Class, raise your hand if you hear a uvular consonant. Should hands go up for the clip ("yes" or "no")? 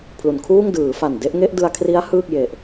no